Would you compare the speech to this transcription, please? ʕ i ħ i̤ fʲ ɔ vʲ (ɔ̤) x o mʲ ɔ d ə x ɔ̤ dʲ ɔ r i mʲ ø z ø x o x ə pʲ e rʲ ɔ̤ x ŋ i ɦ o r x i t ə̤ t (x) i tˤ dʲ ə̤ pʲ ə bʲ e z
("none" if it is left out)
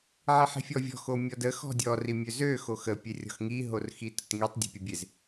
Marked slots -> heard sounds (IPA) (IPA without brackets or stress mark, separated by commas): ɔ̤, ŋ